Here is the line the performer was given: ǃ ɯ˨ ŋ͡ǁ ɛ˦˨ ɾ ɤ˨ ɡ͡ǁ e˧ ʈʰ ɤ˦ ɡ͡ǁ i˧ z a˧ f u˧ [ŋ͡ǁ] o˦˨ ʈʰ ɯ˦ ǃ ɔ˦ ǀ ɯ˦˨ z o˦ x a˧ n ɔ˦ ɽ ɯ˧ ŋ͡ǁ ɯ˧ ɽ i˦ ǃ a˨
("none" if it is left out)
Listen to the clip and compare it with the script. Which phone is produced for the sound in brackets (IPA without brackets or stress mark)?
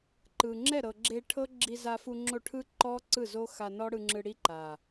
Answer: ŋ͡ǁ